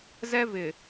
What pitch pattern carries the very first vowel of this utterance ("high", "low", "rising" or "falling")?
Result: high